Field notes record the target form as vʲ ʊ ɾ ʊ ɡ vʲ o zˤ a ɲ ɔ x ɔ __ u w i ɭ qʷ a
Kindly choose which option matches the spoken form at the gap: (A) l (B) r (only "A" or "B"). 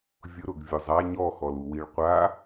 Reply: A